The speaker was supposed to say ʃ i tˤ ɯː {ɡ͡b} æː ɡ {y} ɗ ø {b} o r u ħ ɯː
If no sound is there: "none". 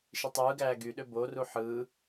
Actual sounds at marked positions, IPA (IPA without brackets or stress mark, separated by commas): ɡ, y, b